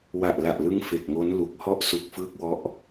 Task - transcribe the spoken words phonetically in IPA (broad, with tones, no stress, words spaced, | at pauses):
wa˨˩ʔla˨˩ʔlɯ˦˥ŋ fe˨˩k̚ŋo˦˥nlu˨˩k̚ hɔ˥˩ʔsu˨˩k̚fɯː˦˥k̚wɔ˦˥ʔ